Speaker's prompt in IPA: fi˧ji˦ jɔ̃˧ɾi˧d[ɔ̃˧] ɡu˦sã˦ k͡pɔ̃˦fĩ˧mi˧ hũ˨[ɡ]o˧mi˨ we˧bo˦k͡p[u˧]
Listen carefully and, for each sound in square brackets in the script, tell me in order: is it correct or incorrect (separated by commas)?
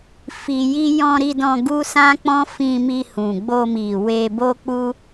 correct, incorrect, incorrect